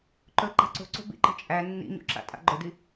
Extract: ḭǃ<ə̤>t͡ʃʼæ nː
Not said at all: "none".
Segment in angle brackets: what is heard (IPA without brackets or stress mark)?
ə̤